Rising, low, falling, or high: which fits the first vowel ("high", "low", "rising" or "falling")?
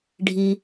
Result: low